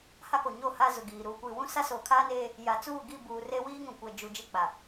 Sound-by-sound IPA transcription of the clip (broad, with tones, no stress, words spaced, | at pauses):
ha˦ko˨ɲo˦˨ ha˦zʊ˨ɡiː˨ ɾuː˨kʷi˨wũ˦ sa˦soː˨kʰaː˦neː˦ | ja˨t͡suː˦˨ɡi˦˨buː˨ re˦wiː˦ŋũ˨kʷɛ˨ d͡ʒu˨ d͡ʒɪ˦˨ k͡pa˨